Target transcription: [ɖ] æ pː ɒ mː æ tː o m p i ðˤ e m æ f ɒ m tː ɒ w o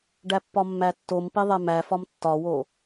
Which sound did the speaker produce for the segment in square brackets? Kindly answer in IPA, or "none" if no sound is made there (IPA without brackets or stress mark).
ɖ